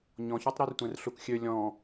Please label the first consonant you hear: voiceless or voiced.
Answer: voiced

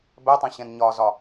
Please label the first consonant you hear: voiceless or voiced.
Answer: voiced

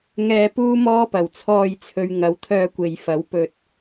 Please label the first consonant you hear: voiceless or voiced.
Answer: voiced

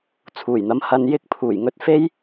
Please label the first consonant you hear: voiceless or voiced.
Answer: voiceless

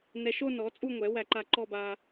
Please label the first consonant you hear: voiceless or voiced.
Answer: voiced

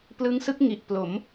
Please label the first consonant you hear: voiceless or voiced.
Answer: voiceless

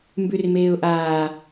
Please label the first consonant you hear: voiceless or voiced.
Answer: voiced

